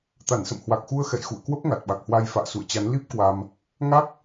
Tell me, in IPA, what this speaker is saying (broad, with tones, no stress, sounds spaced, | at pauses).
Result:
t̪ a˧˩ n s ə̰˧˨ m h w a˨˩ k̚ x u˧ ə̯ x ɛ̰˧˨ j x ṵ˧˨ ə̯ k w ə˦˥ p̚ ŋ a˨˩ t̚ ɓ a˨˩ k̚ h w a˧ j f a̰ː˧˨ s ṵ˧˨ ə̯ t͡ɕ a˨˦ n l i˦˥ p̚ k w a˧ m | ŋ a˦˥ k̚